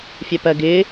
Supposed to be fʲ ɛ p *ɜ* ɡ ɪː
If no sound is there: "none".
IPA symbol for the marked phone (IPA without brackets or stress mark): ɜ